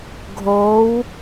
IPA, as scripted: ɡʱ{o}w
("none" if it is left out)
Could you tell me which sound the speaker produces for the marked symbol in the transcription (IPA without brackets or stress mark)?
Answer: o